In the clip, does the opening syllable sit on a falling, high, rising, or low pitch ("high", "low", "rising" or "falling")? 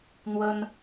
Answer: high